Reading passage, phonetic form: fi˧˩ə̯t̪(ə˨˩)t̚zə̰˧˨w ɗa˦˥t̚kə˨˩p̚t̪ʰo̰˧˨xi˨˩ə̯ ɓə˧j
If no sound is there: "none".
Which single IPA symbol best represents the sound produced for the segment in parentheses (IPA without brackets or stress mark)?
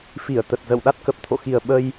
ə˨˩